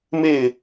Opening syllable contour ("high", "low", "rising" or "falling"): falling